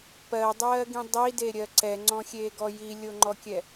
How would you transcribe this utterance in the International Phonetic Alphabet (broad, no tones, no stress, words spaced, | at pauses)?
pɜdˤɜːɡĩ dˤideɾʲɜ ǀɛŋ͡ǀɔ̃xʲeːɡɔ jilʲoŋ͡ǃɔkʲɛ